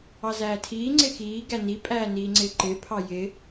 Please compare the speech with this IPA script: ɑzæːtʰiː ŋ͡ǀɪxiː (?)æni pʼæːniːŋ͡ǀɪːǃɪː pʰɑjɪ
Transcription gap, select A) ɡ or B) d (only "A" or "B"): A